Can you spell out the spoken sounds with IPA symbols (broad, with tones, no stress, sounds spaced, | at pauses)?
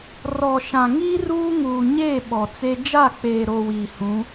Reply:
r ɔ˨ ʃ ã˨ ŋ iː˦ r uː˦ ŋ uː˨ ɲ eː˦˨ ɓ ɔ˨ t͡s e˦ d͡ʒ a˦˨ k͡p eː˨ ɾ o˨ w iː˨ h ũ˨˦